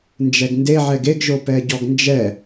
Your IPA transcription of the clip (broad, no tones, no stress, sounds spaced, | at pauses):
n d͡ʒ ɛ ɡ n d e ʕ ɛ ɡ e ɡ ʒ o p ɛ ɟ ɔ ɡ n d͡ʒ ɛ